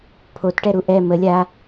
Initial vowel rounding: rounded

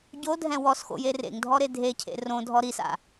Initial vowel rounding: rounded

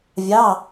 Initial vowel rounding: unrounded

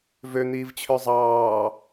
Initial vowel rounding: rounded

